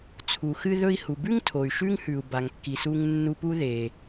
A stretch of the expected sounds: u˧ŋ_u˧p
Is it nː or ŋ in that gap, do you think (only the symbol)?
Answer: nː